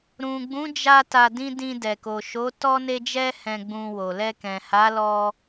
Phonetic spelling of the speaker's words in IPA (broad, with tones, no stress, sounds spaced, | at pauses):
ɾ ũ˨ ɡ͡b ũ˨˦ d͡ʒ a˧ t a˧ d ĩ˦ d ĩ˧ d ɛ˨ k o˨ ʃ o˨˦ t ɔ˦ n e˦ d͡ʒ ɛ˦ h ɛ̃˧ ɡ͡b ũ˧ w o˨ l ɛ˧ k ɛ̃˨ h a˨˦ l ɔ˧